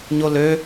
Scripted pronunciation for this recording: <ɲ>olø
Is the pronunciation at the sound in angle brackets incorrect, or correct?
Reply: correct